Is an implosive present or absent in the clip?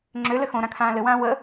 absent